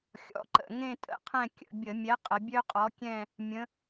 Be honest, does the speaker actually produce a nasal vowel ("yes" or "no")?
yes